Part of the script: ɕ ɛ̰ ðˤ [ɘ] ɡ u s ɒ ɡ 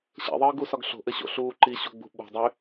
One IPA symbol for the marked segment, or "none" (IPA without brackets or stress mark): ɘː